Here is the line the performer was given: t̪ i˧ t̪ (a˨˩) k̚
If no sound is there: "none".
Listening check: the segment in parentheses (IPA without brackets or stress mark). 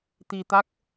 a˦˥